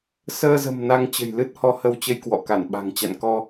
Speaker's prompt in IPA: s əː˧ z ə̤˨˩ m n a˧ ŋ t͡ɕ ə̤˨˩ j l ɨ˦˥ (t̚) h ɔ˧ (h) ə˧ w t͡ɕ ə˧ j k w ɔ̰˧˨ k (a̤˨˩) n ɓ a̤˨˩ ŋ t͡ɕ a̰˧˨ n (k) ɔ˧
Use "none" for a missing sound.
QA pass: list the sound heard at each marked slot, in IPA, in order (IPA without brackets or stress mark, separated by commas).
t̚, h, a˧˩, k